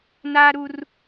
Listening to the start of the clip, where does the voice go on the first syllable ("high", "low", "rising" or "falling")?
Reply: high